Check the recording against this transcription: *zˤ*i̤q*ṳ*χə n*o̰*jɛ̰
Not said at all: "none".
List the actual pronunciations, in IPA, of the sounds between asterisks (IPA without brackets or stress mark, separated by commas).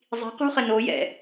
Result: zˤ, ṳ, o